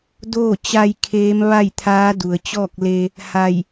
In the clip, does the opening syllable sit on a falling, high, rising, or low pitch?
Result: falling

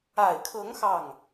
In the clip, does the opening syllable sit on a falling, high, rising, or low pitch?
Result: low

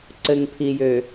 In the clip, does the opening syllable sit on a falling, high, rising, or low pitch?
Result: low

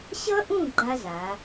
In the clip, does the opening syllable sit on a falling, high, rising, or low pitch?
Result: high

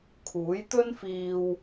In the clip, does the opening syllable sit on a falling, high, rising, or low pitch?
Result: rising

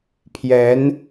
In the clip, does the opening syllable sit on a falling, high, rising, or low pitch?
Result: rising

